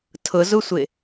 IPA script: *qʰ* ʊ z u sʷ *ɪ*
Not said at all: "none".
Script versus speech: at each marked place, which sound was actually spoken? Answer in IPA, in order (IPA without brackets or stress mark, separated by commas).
tʰ, ɪ